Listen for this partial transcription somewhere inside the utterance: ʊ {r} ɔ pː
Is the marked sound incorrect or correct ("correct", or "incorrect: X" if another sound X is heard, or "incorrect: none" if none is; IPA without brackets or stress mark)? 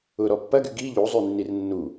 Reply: incorrect: ɾ